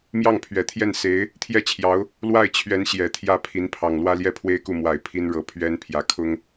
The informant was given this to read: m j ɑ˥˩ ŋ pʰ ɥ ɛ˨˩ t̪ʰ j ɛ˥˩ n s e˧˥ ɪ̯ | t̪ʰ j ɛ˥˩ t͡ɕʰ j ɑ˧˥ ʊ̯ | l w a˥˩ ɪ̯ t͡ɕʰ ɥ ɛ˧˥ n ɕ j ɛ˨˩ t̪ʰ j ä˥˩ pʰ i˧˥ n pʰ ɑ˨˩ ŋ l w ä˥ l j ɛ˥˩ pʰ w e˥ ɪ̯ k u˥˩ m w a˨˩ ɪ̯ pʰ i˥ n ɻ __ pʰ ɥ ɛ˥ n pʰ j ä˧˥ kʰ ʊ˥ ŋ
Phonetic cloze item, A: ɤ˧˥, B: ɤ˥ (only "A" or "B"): A